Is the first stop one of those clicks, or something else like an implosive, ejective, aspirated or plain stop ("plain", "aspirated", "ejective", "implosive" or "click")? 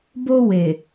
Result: plain